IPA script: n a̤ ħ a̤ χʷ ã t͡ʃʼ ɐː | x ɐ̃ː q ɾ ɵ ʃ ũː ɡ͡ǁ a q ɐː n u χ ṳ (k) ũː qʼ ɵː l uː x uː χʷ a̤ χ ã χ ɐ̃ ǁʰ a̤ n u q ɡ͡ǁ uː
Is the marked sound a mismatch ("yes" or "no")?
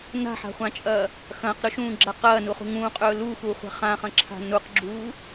yes